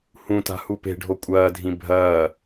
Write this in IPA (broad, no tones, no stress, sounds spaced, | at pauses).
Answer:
h ũ t a̤ h u p e̤ ɖʱ o kʷʼ ɐː dʱ ĩ bʱ ɐː